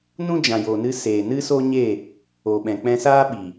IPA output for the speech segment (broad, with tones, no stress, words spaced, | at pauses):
nũ˦d͡ʒã˨jo˨nɨ˧ seː˨nɨ˦so˦ɲe˦˨ | o˨ɓɛ̃˨k͡pɛ̃˧saː˦ ɓi˨